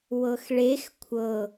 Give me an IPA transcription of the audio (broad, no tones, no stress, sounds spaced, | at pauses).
w ɤ x ɭ e x kʷʰ ɤ